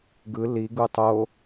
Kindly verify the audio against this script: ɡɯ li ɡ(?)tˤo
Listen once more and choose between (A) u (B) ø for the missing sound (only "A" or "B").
A